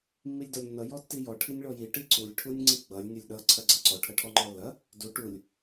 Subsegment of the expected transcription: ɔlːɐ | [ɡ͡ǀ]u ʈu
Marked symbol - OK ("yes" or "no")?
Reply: no